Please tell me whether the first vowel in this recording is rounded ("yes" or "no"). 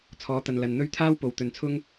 yes